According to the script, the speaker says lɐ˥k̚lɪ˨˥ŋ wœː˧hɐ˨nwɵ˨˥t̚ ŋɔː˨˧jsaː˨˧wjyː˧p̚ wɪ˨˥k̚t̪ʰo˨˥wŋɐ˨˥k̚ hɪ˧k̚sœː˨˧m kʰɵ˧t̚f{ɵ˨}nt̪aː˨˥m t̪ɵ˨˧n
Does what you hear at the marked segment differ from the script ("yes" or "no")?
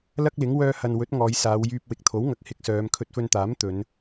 yes